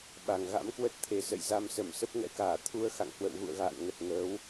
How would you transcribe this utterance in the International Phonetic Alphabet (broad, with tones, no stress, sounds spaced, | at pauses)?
ɓ a˨˩ ŋ ɣ a̰˧˥ m k w ə˦˥ t̚ t̪ʰ e˨˩ s ə̰˧˨ j z a˧ m s ə˧˩ m s ə˦˥ p̚ ŋ ɛ̰˧˥ k aː˧˩ t̪ʰ u˧ ə̯ x a̰˧˨ ŋ h w ə̰˧˨ w ɣ ṵ˧˨ ə̯ ɣ a̰ː˧˨ n ŋ ə˨˩ t̚ ŋ əː˨˦ w